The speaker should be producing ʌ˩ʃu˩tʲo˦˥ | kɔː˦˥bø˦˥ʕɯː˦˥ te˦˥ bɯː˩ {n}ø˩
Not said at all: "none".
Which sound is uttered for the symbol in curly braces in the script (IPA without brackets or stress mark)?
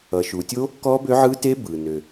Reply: n